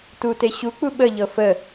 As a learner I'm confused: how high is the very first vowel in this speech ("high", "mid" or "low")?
high